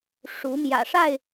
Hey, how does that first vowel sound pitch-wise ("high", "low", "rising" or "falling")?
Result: rising